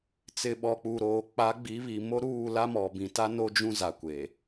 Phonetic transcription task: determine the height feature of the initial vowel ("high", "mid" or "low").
high